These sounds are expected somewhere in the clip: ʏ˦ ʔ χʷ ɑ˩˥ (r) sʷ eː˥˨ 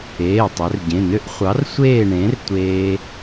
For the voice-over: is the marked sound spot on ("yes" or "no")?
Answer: yes